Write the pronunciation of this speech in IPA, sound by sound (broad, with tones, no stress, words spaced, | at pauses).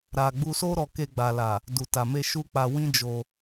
ɾa˨ ɡ͡bu˧so˦ɾɔ˧ke˧ ɡ͡ba˨la˨ | du˨ta˨me˧ ʃu˦k͡pa˧ wĩ˦d͡ʒo˧